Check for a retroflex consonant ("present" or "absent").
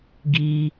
absent